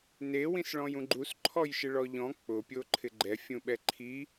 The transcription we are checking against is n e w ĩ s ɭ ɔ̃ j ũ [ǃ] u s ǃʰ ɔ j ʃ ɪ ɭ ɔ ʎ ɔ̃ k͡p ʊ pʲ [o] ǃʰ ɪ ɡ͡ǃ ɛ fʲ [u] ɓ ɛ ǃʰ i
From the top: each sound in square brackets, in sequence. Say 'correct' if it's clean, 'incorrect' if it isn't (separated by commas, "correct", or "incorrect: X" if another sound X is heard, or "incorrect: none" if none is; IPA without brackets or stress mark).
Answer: incorrect: ɡ͡ǃ, correct, incorrect: ũ